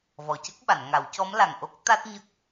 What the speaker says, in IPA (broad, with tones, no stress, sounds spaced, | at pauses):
v ɔ˨˩ c ə˦˥ k̚ ɓ a˨˩˨ n ŋ a˨˩˦ w c ɔ˧˥ m l a˨˩ ŋ ʔ o˦˥ k̚ t̪ a˦˥ t̚ ɲ ə˦˥ k̚